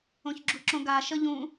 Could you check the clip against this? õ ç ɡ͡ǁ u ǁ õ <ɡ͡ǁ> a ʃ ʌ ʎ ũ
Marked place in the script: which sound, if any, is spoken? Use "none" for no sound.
ɡ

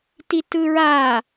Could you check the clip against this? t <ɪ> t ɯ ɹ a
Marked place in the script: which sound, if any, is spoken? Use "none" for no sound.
i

